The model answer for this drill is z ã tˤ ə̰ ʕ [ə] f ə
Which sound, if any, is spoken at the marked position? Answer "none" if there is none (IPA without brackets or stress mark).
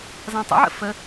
ə̰